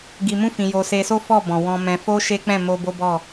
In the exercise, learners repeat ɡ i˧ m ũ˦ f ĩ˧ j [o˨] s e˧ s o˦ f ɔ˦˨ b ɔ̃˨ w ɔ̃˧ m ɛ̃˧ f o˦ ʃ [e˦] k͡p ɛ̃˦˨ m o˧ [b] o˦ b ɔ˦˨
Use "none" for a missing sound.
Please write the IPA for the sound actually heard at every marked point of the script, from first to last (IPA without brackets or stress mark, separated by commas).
o˧, e˦, b